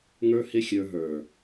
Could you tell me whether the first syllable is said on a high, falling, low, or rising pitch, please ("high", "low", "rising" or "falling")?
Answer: high